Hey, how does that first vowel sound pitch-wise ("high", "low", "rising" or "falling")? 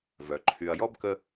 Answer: low